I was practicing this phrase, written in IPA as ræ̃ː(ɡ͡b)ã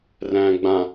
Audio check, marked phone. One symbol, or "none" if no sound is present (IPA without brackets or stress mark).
ɡ͡b